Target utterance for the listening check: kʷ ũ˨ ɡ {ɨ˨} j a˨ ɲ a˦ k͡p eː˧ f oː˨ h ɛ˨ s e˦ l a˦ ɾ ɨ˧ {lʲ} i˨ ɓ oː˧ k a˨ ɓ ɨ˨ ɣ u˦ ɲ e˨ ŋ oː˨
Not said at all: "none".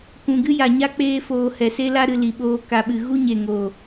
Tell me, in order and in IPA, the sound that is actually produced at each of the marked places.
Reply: ɨ˦, l

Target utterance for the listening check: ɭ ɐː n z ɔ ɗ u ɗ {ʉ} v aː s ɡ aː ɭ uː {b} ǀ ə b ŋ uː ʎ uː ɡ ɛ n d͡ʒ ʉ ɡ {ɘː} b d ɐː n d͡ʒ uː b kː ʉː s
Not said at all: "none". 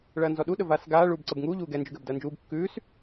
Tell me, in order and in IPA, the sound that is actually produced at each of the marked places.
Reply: ə, b, ɘː

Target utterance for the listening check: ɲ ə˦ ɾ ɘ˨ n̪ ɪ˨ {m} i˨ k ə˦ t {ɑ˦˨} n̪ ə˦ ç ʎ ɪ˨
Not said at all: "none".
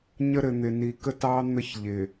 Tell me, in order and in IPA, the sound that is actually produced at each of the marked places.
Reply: n, ɑ˦

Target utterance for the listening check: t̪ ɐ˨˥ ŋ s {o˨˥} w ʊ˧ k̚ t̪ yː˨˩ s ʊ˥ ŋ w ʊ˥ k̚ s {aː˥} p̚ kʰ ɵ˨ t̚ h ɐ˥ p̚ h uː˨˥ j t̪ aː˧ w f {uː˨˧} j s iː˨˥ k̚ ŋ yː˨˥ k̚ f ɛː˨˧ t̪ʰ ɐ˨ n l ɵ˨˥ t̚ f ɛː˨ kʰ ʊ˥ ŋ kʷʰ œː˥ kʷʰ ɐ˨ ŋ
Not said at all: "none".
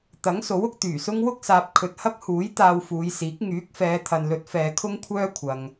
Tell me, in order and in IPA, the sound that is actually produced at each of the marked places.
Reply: o˨˥, aː˨, uː˨˧

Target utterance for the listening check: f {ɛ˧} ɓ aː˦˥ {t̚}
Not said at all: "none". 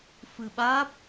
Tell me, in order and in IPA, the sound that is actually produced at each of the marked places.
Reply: ɨ˧, p̚

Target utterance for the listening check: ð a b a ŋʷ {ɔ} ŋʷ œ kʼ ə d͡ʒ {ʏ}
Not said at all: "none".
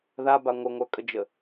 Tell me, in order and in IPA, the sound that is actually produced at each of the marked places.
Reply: ə, ə

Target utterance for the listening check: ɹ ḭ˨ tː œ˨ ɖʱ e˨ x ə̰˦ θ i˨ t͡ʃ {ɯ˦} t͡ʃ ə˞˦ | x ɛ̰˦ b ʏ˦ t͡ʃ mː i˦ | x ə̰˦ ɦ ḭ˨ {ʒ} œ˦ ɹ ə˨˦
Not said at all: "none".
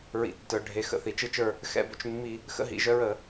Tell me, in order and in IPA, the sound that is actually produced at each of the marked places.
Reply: ɯ˦, ʒ

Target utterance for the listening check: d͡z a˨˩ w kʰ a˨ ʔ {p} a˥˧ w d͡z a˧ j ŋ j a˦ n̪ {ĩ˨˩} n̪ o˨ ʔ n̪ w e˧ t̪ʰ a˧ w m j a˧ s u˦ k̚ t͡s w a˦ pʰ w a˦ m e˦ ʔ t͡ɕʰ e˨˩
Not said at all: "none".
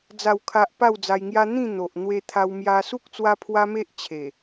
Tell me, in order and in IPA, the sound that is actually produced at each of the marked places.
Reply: p, ĩ˥˧

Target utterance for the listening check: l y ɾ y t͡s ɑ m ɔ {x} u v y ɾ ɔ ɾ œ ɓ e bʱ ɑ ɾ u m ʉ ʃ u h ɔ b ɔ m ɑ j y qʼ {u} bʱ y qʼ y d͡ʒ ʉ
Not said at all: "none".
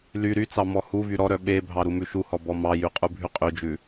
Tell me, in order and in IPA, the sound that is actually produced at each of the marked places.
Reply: h, u

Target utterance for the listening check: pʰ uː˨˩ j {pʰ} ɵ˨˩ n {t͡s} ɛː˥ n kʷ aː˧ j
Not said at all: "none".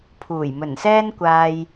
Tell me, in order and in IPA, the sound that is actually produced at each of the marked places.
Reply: m, s

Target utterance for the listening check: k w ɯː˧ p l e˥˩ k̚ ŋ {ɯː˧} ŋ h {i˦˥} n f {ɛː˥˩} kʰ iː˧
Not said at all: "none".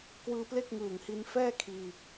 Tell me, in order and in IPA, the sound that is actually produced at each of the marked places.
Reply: ɯː˨˩, i˧, ɛː˥˩

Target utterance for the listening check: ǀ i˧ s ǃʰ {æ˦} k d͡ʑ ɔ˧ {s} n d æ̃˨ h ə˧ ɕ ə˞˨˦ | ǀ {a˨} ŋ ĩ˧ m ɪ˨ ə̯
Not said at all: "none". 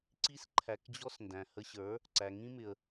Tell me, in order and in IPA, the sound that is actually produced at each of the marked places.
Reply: æ˨, s, æ˨

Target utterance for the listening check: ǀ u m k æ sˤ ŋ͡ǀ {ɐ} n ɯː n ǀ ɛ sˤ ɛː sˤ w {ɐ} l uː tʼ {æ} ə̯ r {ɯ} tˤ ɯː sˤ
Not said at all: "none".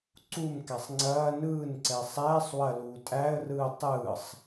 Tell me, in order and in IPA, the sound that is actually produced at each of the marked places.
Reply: ɐː, ɐ, æ, ɯː

